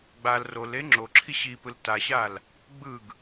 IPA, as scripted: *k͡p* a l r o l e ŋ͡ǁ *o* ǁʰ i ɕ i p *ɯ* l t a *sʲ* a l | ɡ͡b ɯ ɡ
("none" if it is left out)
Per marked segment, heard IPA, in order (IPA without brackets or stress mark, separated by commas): ɡ͡b, o, ɯ, ɕ